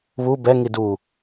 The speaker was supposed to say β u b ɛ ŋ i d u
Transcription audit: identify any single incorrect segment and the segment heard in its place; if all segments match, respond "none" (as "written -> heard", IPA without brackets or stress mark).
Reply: none